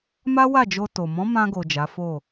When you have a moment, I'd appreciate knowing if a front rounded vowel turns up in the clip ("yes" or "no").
no